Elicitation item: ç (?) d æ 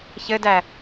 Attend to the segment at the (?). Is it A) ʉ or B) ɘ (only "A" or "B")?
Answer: B